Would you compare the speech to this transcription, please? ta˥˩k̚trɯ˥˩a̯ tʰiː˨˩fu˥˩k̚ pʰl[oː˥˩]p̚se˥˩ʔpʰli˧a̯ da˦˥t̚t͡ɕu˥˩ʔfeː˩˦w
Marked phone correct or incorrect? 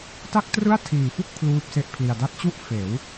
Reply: incorrect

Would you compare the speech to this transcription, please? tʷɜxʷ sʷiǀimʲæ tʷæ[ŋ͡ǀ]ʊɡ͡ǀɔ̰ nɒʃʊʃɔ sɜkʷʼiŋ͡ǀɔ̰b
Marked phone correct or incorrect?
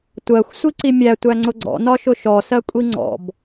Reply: correct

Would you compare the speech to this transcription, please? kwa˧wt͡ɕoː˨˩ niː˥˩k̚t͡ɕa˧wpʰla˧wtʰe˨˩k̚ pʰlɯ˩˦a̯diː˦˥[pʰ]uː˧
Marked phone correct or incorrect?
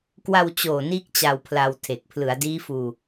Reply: incorrect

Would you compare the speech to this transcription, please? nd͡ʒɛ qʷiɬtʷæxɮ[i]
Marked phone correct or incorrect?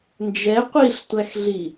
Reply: correct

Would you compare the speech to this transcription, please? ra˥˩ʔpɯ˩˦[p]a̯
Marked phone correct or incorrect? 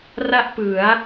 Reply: incorrect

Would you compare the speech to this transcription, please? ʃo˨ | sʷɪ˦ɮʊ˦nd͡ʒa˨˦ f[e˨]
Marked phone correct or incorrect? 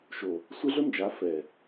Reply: incorrect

